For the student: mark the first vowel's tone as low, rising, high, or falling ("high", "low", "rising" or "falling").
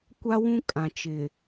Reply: high